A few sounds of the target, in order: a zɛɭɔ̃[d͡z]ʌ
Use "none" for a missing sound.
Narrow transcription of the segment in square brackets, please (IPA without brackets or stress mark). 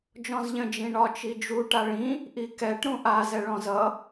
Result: z